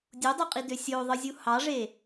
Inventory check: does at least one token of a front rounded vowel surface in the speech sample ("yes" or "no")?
yes